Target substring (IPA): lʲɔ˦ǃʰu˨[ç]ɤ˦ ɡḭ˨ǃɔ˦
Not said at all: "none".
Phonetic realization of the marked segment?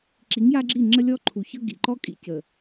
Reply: ç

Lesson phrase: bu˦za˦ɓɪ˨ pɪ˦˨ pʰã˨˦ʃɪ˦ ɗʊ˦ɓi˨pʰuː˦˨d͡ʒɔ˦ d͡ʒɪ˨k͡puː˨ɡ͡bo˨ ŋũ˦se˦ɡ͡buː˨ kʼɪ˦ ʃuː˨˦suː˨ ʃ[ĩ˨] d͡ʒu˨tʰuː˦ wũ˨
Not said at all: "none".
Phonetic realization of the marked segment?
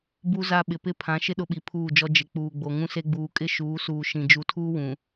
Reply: ĩ˨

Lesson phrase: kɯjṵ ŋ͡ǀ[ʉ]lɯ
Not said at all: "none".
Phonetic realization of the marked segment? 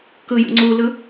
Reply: u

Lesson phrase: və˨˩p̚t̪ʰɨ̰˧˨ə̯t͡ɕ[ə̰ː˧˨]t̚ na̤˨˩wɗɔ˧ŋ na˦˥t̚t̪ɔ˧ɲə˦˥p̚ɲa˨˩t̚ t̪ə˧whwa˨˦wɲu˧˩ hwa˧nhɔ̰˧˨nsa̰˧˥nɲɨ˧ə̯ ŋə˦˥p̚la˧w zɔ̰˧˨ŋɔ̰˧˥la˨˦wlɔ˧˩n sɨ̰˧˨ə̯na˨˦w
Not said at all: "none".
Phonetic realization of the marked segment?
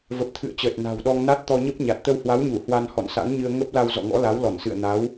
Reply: əː˨˩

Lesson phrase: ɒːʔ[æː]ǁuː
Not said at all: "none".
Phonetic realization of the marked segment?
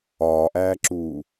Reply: æː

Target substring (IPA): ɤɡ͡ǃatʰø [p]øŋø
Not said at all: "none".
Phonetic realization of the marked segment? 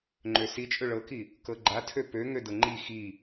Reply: p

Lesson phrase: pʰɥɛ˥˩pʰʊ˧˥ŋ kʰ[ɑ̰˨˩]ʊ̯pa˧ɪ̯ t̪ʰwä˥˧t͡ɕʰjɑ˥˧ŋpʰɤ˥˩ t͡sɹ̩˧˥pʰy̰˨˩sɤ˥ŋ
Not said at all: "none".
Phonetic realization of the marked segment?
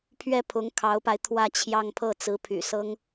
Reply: ɑ˧˥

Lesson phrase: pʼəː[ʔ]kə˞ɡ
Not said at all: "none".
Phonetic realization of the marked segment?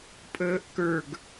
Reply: ʔ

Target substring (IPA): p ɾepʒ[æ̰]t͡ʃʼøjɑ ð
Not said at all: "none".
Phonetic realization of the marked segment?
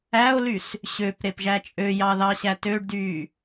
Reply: æ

